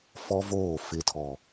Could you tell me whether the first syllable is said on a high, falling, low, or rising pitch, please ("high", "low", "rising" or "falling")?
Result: high